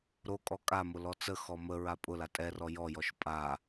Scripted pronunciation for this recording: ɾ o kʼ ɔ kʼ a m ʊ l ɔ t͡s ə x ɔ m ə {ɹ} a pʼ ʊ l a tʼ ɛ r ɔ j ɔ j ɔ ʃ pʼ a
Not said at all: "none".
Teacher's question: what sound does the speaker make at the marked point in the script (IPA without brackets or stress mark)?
ɹ